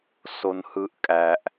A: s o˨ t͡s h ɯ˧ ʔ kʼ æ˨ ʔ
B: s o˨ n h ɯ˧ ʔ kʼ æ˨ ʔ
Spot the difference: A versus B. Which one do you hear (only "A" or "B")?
B